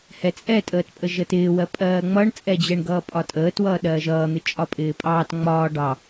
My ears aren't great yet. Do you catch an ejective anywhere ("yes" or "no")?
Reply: yes